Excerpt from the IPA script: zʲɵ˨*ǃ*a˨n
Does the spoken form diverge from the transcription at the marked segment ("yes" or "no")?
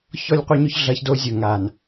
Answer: yes